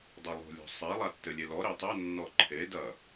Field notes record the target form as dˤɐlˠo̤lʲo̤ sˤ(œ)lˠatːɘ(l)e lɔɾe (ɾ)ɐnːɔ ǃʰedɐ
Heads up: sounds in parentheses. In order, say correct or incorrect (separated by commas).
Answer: incorrect, incorrect, incorrect